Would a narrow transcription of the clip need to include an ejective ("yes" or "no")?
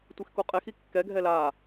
yes